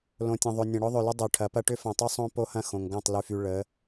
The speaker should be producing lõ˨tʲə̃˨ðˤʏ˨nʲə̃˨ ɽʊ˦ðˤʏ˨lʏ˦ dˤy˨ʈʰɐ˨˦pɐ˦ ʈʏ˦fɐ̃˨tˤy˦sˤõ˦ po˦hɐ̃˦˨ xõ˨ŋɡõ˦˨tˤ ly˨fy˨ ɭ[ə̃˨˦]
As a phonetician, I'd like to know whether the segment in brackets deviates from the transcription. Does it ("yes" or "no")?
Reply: yes